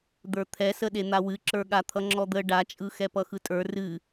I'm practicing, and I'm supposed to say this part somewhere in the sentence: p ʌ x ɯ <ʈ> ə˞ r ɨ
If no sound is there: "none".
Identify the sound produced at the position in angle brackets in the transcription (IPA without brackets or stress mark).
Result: tʼ